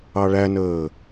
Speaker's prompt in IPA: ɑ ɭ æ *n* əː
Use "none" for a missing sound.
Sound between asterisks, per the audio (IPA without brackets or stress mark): n